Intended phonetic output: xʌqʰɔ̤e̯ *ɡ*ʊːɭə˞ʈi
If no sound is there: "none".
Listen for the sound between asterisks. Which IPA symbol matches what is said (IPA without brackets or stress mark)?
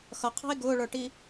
ɡ